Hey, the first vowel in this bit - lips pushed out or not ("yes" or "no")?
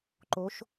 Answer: yes